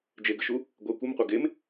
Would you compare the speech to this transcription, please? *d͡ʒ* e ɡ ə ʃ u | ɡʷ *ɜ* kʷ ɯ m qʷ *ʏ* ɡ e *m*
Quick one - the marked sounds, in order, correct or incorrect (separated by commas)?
correct, incorrect, incorrect, correct